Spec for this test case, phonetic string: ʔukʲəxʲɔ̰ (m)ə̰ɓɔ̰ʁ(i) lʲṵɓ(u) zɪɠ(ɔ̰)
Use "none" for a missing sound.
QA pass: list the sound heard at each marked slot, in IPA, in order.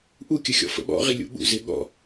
f, i, ṵ, ɔ̰

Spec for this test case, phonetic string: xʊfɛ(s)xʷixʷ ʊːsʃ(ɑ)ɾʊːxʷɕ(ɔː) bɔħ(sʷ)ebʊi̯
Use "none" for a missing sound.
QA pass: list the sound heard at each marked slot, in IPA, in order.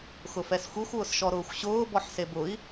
s, ɔ, ʊː, s

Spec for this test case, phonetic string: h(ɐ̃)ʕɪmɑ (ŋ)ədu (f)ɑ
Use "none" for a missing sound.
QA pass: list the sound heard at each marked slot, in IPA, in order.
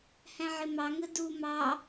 æ̃, ŋ, m

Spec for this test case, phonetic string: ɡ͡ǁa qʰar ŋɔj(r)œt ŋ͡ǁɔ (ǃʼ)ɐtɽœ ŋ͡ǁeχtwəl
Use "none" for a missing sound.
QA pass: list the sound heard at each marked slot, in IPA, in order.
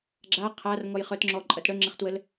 χ, ǃʼ

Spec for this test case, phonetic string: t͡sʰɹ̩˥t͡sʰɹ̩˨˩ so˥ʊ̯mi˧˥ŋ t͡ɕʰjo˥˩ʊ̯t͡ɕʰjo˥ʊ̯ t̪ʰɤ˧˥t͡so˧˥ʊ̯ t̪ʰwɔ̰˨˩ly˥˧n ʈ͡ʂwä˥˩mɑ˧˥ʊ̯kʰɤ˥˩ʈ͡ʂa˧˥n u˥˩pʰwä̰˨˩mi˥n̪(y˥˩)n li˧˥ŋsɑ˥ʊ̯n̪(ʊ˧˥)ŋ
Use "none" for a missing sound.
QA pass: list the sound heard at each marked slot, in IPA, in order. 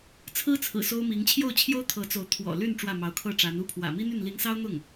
y˥˩, ʊ˥˩

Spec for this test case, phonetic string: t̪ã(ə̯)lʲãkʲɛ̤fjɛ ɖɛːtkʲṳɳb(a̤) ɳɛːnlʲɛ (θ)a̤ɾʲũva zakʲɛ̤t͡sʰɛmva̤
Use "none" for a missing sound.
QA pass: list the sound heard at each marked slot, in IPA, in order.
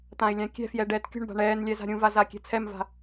ɪ̯, a̤, z

